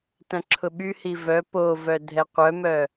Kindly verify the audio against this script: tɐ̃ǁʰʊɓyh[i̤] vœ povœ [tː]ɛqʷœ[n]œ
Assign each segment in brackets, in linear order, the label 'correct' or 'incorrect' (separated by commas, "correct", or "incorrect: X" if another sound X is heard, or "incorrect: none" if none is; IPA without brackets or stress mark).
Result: incorrect: i, incorrect: dʱ, incorrect: m